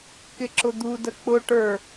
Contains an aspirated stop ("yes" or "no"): no